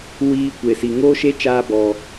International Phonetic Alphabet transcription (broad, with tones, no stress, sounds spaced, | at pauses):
w iː˧ kʷ e˨ s i˨ ŋ oː˦ ʃ e˦ t͡ʃ aː˧ b ɔ˨